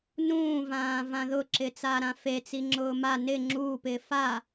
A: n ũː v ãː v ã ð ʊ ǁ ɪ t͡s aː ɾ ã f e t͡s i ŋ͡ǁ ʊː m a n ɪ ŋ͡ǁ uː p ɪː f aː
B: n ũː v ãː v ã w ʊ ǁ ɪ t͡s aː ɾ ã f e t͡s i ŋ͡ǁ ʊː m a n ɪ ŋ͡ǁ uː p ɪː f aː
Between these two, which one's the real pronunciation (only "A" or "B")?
A